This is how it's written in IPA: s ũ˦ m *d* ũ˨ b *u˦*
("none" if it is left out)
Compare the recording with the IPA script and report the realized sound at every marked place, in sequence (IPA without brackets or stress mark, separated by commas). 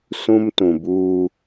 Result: t, uː˦